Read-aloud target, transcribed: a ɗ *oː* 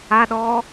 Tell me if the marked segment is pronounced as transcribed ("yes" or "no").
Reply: no